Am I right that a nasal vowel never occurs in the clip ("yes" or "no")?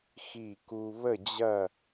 yes